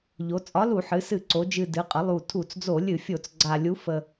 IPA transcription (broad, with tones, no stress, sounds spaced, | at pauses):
ʎ o˩˧ t͡sʼ ɒ˨˥ l u˧˩˧ ħ ɨ˩˧ s ɨ˧˩˧ ǀ o˩˧ d͡ʒ ɨ˨˩ d ɨ˩˧ qʼ ə˩˧ lˠ u˨˩ tʰ u˧˩˧ t͡s d͡z o˧˩˧ lʲ ɨ˧˩˧ fʲ o˧˩˧ t͡s ɡ͡ǀ a˨˩ lʲ u˨˥ f ə˨˩